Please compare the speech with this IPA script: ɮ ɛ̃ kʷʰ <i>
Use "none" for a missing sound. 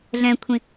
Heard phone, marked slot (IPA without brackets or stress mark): ĩ